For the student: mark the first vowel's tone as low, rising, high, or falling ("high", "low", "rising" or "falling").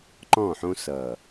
falling